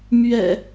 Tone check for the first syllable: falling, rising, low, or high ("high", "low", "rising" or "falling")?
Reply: low